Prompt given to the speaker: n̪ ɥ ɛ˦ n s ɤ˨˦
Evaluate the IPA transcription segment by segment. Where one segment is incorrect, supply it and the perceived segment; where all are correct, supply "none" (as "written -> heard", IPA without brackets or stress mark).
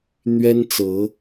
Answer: s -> t͡s